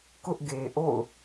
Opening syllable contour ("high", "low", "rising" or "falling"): high